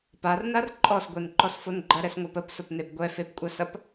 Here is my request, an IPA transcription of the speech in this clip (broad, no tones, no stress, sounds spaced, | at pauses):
p a r n a r ǃʼ ɔ s ɡʷ e n ǃ ɔ s f o n ɡ͡ǃ ɐ ɾ ɛ s ŋʷ a p ə p s ʊ p n e b ɡʷ ɛ f e p kʷʼ a s ɐ p